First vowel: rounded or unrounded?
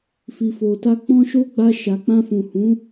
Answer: unrounded